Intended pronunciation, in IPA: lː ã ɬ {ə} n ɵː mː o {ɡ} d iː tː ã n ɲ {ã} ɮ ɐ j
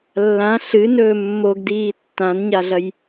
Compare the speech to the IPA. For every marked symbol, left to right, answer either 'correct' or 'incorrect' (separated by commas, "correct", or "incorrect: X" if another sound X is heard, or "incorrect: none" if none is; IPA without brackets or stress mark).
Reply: incorrect: ɨ, correct, incorrect: a